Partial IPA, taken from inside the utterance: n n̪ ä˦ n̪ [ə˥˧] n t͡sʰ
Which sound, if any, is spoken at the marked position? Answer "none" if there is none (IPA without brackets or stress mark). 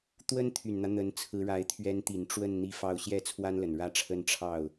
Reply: ə˧˥